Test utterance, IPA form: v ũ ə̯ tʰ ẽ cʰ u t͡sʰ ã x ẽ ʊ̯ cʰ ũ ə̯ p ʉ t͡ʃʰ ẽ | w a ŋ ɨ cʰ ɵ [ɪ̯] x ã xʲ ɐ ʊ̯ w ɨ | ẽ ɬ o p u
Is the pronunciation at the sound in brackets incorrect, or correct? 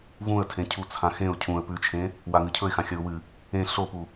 correct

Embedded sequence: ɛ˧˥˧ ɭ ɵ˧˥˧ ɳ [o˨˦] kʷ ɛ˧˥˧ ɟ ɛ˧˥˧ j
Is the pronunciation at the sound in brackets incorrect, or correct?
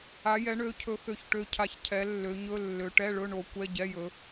correct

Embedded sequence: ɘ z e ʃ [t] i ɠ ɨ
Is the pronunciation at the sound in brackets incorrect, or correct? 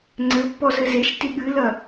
correct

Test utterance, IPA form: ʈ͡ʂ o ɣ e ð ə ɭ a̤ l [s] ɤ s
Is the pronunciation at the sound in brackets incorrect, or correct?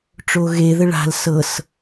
correct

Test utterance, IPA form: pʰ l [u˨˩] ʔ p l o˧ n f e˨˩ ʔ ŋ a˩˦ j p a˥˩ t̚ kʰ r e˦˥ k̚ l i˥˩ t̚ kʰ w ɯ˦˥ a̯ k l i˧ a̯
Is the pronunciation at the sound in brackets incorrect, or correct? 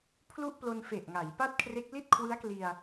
incorrect: u˥˩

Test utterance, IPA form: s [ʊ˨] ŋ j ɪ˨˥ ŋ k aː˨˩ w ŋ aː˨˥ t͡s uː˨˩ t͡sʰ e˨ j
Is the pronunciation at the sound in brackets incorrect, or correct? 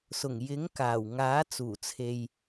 incorrect: ʊ˨˩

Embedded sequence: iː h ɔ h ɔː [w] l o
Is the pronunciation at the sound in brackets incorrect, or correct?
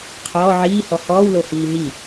correct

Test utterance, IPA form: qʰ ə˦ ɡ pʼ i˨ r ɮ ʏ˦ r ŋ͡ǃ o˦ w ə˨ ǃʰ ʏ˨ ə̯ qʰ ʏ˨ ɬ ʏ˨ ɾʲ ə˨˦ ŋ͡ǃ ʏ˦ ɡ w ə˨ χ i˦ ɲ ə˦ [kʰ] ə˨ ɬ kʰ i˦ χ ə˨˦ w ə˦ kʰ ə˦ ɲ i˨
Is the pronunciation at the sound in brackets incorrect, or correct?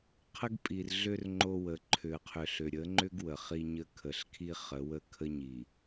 correct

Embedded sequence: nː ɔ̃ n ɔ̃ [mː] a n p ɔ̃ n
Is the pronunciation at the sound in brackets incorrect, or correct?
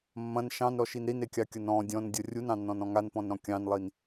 incorrect: ŋ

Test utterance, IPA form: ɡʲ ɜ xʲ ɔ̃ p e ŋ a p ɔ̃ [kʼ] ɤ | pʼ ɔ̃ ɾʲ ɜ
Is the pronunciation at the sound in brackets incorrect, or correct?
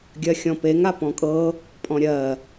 correct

